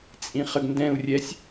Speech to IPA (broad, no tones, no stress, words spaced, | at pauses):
t͡sʼĩχəɡndɛ̃u̯rʲɛsʲ